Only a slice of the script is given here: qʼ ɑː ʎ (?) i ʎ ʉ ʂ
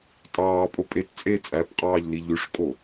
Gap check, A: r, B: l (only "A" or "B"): B